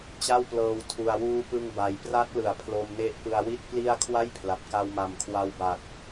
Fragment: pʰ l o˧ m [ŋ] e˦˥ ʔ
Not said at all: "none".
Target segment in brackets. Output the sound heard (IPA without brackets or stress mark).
n